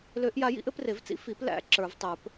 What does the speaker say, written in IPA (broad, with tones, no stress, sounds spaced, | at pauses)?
l ø˧˥ ʔ j a˧˥ j ḭ˧˥ ʔ ɘ˧˥ p r e˨˩˦ v t͡s ḭ˧˥ f i˨˩˦ p l æ̰˨˩˦ ǁ ə˞˨˩˦ v tˤ ə˞˨˩˦ p